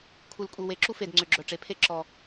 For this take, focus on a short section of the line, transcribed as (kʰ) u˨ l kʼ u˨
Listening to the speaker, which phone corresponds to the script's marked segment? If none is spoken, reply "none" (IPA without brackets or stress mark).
kʰ